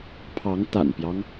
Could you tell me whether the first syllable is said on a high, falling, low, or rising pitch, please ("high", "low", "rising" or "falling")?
rising